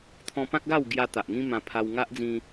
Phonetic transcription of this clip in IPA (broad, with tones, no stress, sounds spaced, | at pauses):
t̪ʰ ɔ̃˧ p ã˦ k̚ ɡ a˥˧ w ɡ j a˧ t̪ a˨ ʔ ŋ ĩ˦ m ã˧ pʰ a˧ w ŋ a˦ ʔ d͡z ĩ˧